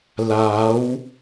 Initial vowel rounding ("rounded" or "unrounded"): unrounded